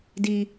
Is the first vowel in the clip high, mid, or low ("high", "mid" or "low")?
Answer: high